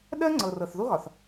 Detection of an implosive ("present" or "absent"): present